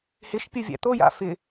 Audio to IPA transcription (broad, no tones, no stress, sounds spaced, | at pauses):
h ɪ ʃ pʲ ɯ vʲ æ̰ t̪ o j a̰ f ɪ